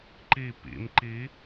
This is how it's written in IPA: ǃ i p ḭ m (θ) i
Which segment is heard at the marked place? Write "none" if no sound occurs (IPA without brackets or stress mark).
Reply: ǃ